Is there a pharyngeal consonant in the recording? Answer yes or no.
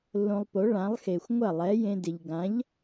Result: no